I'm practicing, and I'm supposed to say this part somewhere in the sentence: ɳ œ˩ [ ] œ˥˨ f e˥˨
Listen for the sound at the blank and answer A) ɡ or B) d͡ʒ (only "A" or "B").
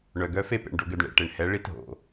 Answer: A